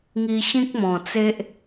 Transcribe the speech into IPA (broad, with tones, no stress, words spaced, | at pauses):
ŋi˧ɕĩ˦k̚mɔ̃˨˩t͡se˦ʔ